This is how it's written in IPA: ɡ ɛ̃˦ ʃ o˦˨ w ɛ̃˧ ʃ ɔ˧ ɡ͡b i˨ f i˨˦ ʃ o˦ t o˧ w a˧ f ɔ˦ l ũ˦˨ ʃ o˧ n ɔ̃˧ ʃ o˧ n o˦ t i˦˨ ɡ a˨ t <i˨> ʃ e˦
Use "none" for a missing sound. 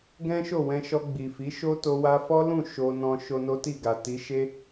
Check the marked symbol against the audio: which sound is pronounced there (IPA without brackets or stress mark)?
i˨˦